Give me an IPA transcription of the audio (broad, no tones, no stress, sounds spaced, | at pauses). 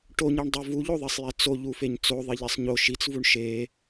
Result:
ʈ o ɲ i ɳ dˤ o v u ʎ o ðˤ e sˤ j ɛ t͡s o ʎ u f e ɲ t͡s o ðˤ i ʎ e sˤ ɲ o ʃ i t͡s v u ɳ ʃ e